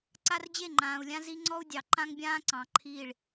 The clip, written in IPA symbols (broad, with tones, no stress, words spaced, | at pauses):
ǀa˦rd͡ʑe˦˨ŋ͡ǃãː˨u̯lʲã˦ zi˦ŋ͡ǀɔ˦u̯ dʲɑ˨ ǃã˦ŋbʲãː˦ ǀɑ̃˨ǃʰiː˦˨ɭ